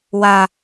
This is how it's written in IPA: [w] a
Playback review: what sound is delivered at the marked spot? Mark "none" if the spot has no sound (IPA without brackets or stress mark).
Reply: w